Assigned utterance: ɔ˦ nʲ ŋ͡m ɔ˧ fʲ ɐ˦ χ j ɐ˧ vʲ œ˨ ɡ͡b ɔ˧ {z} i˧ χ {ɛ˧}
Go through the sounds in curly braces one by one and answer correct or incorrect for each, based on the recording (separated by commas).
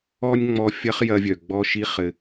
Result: incorrect, incorrect